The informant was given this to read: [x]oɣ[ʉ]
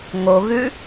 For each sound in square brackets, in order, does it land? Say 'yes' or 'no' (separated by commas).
no, yes